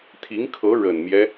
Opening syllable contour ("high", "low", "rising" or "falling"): rising